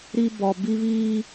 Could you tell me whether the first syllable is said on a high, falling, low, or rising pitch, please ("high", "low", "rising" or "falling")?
high